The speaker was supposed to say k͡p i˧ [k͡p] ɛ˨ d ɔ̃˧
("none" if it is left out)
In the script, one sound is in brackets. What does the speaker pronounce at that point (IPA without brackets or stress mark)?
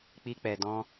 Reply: k͡p